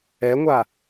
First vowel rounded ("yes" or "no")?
no